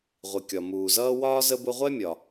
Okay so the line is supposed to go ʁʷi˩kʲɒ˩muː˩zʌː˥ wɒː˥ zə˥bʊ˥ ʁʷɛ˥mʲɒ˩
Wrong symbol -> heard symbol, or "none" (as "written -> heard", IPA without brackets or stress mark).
none